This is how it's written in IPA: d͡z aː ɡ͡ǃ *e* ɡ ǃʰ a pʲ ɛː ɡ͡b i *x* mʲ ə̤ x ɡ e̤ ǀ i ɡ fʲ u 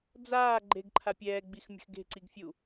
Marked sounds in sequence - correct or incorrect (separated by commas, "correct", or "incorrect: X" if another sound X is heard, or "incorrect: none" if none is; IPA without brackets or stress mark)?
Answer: correct, correct